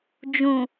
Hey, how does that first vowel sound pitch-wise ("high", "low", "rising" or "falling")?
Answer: low